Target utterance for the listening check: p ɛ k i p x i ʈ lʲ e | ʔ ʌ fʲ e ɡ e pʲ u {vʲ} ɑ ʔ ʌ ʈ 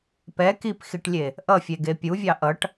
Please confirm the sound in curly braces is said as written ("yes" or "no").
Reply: yes